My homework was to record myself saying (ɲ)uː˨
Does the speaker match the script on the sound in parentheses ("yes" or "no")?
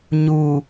yes